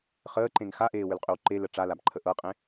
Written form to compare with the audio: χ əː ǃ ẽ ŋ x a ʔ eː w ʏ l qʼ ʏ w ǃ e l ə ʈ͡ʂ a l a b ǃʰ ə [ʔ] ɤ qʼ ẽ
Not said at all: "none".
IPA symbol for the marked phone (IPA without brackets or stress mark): ʔ